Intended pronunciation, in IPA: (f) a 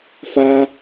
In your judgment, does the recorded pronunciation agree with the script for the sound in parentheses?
yes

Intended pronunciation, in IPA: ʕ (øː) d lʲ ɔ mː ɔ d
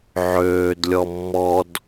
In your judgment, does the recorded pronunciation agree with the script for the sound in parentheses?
yes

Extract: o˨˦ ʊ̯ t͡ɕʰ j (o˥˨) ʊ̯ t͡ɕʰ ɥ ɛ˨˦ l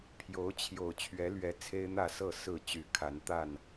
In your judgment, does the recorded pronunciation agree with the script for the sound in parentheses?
no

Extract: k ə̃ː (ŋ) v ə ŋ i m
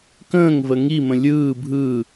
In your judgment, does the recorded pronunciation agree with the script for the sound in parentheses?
yes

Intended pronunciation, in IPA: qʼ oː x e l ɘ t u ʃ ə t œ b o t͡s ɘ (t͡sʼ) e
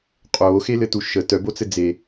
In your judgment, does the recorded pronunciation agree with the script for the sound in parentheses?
no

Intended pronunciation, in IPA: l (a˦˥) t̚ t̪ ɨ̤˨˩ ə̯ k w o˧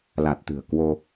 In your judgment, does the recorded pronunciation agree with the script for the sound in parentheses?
no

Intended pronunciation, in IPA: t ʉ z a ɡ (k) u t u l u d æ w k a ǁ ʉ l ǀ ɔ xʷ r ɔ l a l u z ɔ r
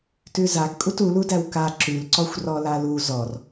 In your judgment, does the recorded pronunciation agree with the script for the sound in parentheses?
no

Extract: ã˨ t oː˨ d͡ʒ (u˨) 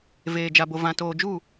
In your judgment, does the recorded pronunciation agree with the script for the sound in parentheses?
no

